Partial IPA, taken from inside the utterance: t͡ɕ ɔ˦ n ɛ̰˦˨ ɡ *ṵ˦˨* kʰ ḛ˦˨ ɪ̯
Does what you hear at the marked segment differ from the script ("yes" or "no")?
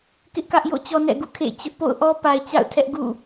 no